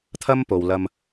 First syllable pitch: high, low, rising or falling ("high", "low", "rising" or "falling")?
high